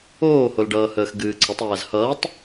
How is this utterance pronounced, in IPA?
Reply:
oː h o l ɖ ʌː h əː x ɡ ɨː ǀʰ ə tˤ æː z h ʌː tˤ

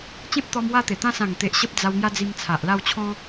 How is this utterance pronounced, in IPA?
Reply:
t͡ɕ ẽ˦ p̚ t̪ ɔ˧ m w a˦ t̪ e˨˩ t̪ ã˦ s ã˨˩ ŋ t̪ e˨ ʔ ɕ ə˦ p̚ d͡z a˧ w ŋ j a˦ d͡z i˧ m t͡sʰ a˨ ʔ l a˥˧ w t͡ɕʰ ɔ̃˦

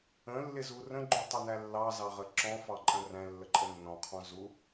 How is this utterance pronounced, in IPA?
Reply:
ə̃ lː ɪ z u r ə̃ ɡ͡ǃ u tˤ ʌ n æ lː ɑ z ɑ ʁ ə ǁ ɔ̃ f ɑ ǃʼ ə̃ r æ̃ lː ə ǃʼ ə nː ɔ̃ qʰ ɔ̃ z u

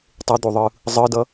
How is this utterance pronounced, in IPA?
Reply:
tˤ e d̪ o ðˤ ɯ | zˤ ɯ d ʌ

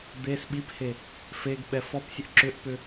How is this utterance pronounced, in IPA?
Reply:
d̪ e s ɓ i p h e | f e ɡ ɓ ɛ f ɔ p sʲ ə ʔ ǁ ʏ ʔ p ʏ

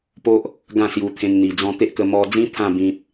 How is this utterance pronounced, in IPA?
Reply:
p o˦ ʔ | ɡ ã˥˧ s j u˧ t̪ʰ ẽ˧ ŋ n̪ i˨˩ d͡z ɔ̃˧ t̪ e˦ ʔ k ə˧ m ɔ˧ d͡z ĩ˦ t̪ʰ ã˥˧ b ĩ˨ p̚

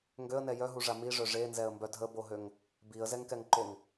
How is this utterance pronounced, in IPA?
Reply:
ŋ ɡ ø ə̯ n ɛ j œ ɦ u ʐ a m i ʐ œ ʐ e n z ɛ ə̯ m b œ dʱ ə b o ɦ ø ŋ | b i ə̯ z ɛ ŋ k ɛ ŋ ǃ o ŋ

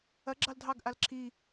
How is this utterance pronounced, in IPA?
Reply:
ɐ ɡ͡ǁ ɑ l dʱ ɑ ɡ ʔ a l ǁʰ i

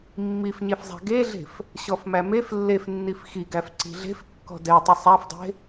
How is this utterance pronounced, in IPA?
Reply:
mː i f ɲ e f zˤ æ̤ ɡ e ɮ e̤ f | ɕ ɔ f m æ m e f lː e f nː i f x i ɡ æ f ǀ i̤ ɮ e̤ f kː ɔ̤ d ɛ tˤ ʊ sˤ æ f dˤ e̤

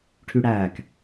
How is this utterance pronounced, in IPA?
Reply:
ʈʰ y ɽ æː k

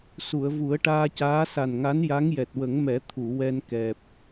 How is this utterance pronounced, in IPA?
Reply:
s u˨˩˨ ə̯ v u˨˩˦ ə̯ ʈ aː˧ c aː˧˥ s a˨˩ n ŋ a˧˥ n j a˧˥ ŋ j ɛ˨˩ t̚ w ə˨˩˦ ŋ m ɛ˨˩˦ t̪ʰ u˨˩˨ w ɛ˧ n k ɛ˨˩ p̚

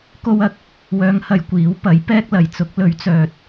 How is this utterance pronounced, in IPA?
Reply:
k o˥ w ɐ˧ k̚ | w œː˨˧ ŋ h ɐ˨ j kʷ iː˨˥ w p ɐ˨˥ j p ɛː˥ k̚ l ɐ˨ j t͡s ʊ˨˥ k̚ l ɵ˨˥ ɥ t͡s œː˨ t̚

